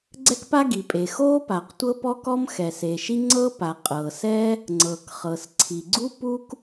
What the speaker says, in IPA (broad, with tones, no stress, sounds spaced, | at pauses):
ɡ͡ǀ ɛ˥ k p a˥ ɡ i˩ pʼ e˩ x o˥ p a˩ q tʷ ɤ˥ p ɔ˥ k ɔ˥ m x ɛ˩ s e˩ ʃ i˥ ŋ͡ǀ ɤ˥ p a˩ qʼ ɤ˩ s ɛ˥ | ŋ͡ǀ ɤ˩ k χ ɤ˩ s ǀʰ i˩ ɡ͡ǀ u˥ p u˥ k